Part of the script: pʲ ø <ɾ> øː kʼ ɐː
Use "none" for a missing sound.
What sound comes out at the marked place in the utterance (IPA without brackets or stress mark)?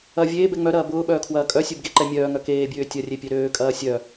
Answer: ɾ